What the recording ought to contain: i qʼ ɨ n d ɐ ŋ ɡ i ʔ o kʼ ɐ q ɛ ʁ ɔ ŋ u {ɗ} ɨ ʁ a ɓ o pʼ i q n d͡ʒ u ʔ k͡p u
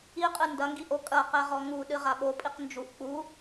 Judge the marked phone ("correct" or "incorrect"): correct